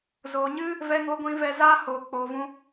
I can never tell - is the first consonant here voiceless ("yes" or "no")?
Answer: no